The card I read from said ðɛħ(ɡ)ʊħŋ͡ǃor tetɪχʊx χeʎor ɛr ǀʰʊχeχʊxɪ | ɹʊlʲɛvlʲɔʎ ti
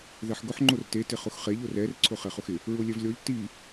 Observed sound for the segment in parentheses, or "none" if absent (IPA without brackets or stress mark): ɡ